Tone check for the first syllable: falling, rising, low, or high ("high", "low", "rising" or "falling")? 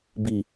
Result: low